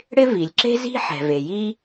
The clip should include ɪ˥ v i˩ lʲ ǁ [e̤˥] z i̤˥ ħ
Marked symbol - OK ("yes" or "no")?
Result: yes